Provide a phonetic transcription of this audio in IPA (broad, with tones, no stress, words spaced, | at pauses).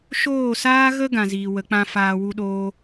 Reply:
ʃoː˦˨saː˦ɣə˦ ɡã˨ziː˨wə˨˦k͡pã˦ faː˧wu˦ɗoː˦